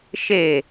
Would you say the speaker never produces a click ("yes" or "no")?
yes